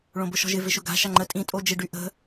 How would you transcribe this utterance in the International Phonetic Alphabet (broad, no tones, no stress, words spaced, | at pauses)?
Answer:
ɭõbʊʃɔ̤ʒɪ vɪʃʊɡa̤ ʃaŋ͡ǃə tʼĩ tʼod͡ʒɪ ɖyʔə̤